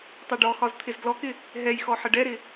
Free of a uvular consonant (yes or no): yes